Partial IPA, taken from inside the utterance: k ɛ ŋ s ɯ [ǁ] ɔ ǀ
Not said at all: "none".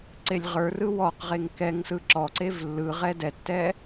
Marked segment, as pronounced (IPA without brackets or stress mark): ǁ